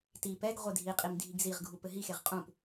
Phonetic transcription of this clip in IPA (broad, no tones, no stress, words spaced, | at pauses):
ti pɛɡ ʁʷedʱiqʼim dʱiɡziʁɡʱu pɘɦixeʁ qʼũp